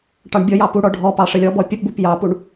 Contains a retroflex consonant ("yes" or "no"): yes